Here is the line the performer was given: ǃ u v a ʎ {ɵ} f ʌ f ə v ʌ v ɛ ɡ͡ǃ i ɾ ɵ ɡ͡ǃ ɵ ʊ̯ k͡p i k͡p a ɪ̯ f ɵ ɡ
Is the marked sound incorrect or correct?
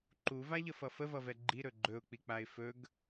incorrect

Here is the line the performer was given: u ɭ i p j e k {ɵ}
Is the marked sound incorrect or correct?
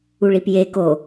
incorrect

